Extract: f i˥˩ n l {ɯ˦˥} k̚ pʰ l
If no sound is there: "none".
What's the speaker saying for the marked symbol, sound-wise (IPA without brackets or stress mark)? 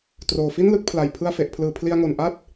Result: ɯ˦˥